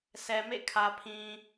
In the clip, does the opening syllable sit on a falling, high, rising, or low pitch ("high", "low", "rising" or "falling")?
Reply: low